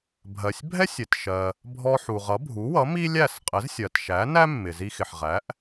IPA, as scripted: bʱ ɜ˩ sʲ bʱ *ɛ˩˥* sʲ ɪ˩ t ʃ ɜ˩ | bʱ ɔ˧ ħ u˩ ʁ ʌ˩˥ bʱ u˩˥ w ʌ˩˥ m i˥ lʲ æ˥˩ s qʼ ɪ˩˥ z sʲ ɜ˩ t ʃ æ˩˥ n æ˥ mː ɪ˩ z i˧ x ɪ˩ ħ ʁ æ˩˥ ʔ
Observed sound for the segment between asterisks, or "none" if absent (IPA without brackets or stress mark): ɛ˥